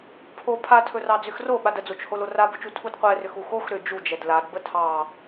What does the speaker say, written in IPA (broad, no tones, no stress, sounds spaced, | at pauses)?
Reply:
pʰ o pʰ a tʰ ɵ r ɑ d͡z ʏ x r o ɓ a d ə d͡z o t͡ʃ h o l o r a b ɵ t͡ʃ u tʰ u d qʷ ɛ r ʏ x u x o x ɾ ʏ d͡ʒ u d͡ʒ ɛ d l a d b ə tʰ ɑ